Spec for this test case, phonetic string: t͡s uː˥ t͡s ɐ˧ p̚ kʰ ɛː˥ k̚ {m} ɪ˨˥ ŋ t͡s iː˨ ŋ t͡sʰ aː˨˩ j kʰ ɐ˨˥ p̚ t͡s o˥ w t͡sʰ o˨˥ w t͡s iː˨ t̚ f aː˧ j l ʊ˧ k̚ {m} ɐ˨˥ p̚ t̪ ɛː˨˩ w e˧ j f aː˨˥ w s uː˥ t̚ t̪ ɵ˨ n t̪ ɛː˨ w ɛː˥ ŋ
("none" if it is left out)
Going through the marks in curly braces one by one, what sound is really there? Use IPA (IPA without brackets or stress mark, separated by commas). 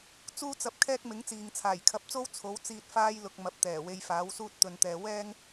m, m